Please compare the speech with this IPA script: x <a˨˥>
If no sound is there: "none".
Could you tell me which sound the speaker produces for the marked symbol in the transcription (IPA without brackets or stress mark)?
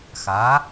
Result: a˨˥